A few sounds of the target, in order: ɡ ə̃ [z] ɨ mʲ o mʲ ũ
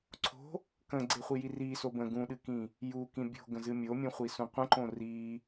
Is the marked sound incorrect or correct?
correct